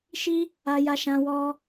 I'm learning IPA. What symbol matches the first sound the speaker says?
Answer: ʃ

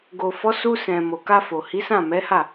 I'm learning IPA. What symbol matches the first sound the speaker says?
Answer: ɡ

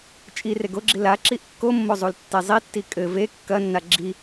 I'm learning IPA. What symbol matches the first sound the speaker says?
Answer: t͡ʃʼ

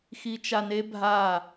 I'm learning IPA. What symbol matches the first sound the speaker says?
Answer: x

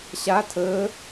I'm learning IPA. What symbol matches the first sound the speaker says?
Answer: ɕ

